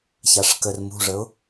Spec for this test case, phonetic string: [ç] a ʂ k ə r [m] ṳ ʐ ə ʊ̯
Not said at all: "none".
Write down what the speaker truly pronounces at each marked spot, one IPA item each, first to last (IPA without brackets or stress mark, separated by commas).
ç, m